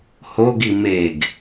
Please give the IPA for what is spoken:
hoɡi meɡ

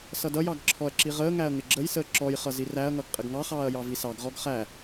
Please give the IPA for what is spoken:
sʌdʌjɑɡ ǁʰɔɐ̯ǁiʁəːŋæɐ̯ ŋɪɡ͡ǁəjsəː ǁɔjχʌ ziræɐ̯ŋʌɡ qʼɪɡŋɑχɑːɐ̯ jɑvisɑɡʁɔɡ χæ

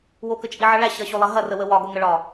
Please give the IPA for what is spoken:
wokət͡ʃʼiʕʌ ɭæɕɐɕolˠɐ ɦɐrəwə wɒɡoŋəɭɒ

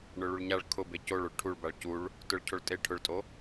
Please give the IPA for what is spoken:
ɳʊɭuɭɲaɭ kʰʊ becoɭoɭ ʈʰuɭbaɭ cuɭ | tʊɭcʰoɭ tʼe ʈʰʊɭtʼo

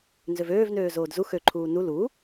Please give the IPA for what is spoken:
nzøvøːvnøː zoːdzu xøǃʰuː nu lu

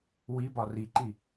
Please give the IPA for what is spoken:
wibɒ riǃi

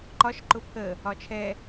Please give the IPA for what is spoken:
ǃɒʃ ǃʊpʰə | ɒt͡ʃʰɛ

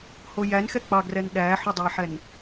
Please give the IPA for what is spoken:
hojænxɛ k͡pɑɡrɛn ɗæħudˤojħɛn

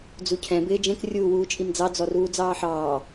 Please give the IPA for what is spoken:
d͡zucʰɛ̃ bɪːd͡ʒɛ̃k rʲuːwuːt͡ʃʼimd͡zɑ d͡zɔruːd͡zɑːħɑː

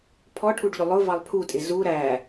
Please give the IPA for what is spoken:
pʰɔʈʰuɖʎʊ lˠʊvɑlˠ pʰutʼɪ zu ɾæ

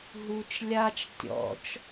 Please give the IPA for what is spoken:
ɦut͡ʃ lʲat͡ʃ tʲɔ̰t͡ʃ

